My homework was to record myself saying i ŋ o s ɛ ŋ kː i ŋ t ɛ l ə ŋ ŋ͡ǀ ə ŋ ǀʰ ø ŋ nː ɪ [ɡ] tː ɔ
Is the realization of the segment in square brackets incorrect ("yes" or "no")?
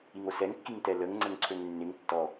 yes